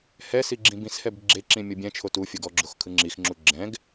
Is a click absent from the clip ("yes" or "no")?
no